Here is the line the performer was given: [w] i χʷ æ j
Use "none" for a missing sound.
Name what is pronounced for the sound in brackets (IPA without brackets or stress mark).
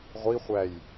ʁʷ